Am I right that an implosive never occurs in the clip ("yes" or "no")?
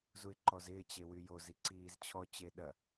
no